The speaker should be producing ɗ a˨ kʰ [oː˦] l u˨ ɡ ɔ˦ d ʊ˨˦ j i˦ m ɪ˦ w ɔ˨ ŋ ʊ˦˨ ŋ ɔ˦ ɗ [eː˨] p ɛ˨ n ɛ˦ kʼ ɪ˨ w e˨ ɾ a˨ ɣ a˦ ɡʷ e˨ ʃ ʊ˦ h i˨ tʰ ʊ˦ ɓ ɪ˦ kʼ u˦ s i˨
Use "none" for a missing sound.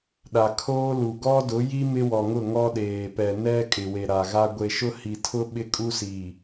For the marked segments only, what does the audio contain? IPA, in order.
oː˦, eː˨

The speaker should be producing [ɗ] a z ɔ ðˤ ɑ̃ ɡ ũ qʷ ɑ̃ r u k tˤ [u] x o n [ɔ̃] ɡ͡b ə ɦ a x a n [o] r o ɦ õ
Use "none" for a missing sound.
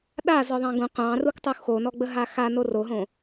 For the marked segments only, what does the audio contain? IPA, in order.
ɗ, u, ɔ, o

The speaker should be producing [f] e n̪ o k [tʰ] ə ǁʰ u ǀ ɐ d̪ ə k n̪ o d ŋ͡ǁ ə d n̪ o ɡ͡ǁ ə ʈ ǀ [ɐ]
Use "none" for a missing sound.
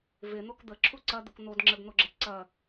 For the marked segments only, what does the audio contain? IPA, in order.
v, d̪, ɐ

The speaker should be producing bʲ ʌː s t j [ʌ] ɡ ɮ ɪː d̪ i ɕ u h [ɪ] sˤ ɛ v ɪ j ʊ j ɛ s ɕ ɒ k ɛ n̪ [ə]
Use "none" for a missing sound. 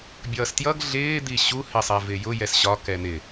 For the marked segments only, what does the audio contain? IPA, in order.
ʌ, ɪ, ɪ

